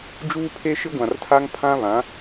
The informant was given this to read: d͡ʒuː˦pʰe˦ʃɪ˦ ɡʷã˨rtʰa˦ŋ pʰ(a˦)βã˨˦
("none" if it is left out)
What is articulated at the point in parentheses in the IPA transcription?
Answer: ã˦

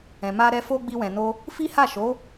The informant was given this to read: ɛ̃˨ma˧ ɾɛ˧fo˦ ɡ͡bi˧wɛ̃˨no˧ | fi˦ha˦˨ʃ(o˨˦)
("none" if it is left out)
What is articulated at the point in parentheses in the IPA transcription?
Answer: o˨˦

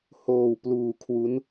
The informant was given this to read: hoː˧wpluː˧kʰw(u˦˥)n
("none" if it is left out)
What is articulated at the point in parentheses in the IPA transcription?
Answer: u˦˥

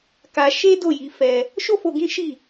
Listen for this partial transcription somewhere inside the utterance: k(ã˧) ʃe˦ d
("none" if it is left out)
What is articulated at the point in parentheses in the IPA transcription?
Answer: a˧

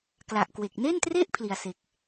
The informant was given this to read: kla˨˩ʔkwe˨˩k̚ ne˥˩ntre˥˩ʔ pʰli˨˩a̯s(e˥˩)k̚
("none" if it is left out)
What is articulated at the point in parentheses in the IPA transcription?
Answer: e˨˩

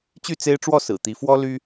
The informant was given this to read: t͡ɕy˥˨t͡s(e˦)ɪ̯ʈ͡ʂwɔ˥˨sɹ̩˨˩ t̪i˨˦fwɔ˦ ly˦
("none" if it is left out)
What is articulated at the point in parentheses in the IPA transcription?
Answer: e˦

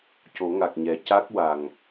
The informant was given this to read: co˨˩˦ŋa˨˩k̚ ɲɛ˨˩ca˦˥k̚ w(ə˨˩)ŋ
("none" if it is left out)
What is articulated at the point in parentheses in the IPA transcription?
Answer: a˨˩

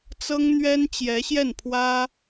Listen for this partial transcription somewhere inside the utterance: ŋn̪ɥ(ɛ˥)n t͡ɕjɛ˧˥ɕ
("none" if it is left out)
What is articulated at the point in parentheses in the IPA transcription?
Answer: ɛ˥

